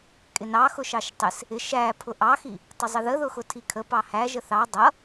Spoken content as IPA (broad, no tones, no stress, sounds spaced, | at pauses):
kʼ ɪ n ɑ x ʊ ʃ ɑ ʃ tˤ ɪ s | ɪ ʃ æ pʰ ʊ ʔ ɑ x i | tˤ ɪ zˤ ə ð ə ð ʊ x ʊ tʰ i kʰ ə p ɑ h æ ʒ ə θ ɑ dˤ ʌ